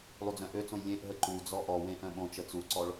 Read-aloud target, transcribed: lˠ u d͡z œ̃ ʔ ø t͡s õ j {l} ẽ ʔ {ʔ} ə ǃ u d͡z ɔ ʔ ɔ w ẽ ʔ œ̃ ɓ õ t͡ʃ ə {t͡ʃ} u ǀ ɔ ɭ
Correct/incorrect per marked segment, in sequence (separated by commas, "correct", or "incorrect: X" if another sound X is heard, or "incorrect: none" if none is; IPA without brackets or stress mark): incorrect: lʲ, incorrect: ɦ, incorrect: t͡s